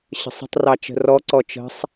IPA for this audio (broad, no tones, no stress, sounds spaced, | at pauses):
ɕ ə̤ sˤ ə̤ tˤ r ɑ t͡ʃ ə̤ r ɔ ǀ ɔ t͡ʃ ə̤ sˤ